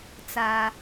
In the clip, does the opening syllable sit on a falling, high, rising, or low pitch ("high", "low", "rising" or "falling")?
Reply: high